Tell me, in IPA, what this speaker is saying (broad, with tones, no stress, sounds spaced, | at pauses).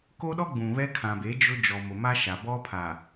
k o˦ ɗ ɔ˦ ɡ͡b ũ˨ β ɛ˦ kʰ ã˨ b e˨˦ d͡ʒ ʊ˦ d͡ʒ ɔ˨ m ʊ˨ m a˦ ʃ a˨ b ɔ˦ pʰ a˨